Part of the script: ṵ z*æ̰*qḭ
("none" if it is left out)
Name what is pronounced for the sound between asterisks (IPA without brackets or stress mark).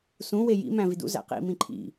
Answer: æ̰